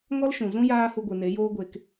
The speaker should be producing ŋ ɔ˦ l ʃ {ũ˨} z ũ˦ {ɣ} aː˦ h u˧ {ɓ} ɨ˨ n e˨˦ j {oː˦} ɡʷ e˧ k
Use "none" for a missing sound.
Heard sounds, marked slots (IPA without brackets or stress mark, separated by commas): ũ˨, j, ɡʷ, oː˦